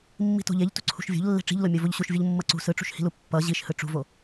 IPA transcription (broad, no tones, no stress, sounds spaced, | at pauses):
mː i̤ t o̤ ʎ e ʎ t ṳ ǀʰ ṳ ʃ vʲ o̤ ʎ lː e̤ ʈ͡ʂ i̤ ʎ l o mʲ o v o ʎ ɕ u ʃ vʲ ɯ ʎ mː ʌ ǀ ṳ s ɯ ʈ͡ʂ ṳ ʃ h i̤ l u pː ʌ ʑ i ʃ h ɯ ʈ͡ʂ ṳ v o